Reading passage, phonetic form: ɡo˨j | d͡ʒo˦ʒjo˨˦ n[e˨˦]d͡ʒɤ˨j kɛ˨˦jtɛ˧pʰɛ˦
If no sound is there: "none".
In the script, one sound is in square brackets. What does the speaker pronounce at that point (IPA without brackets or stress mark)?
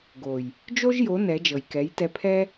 ɛ˨˦